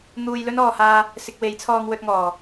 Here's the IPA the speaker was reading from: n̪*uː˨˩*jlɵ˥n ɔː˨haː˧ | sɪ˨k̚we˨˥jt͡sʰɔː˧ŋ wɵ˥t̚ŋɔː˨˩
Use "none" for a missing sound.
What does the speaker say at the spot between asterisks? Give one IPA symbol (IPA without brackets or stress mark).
uː˧